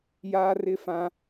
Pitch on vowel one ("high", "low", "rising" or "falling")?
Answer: high